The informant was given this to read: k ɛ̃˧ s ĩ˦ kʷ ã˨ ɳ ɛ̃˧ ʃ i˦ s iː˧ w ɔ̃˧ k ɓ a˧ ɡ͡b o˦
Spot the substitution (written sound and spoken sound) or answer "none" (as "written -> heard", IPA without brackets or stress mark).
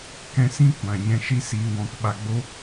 ɳ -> ɲ